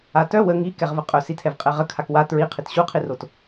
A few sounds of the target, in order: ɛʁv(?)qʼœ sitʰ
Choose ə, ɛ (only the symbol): ə